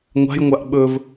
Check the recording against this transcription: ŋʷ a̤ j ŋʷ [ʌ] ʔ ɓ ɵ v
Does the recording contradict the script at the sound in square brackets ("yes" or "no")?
yes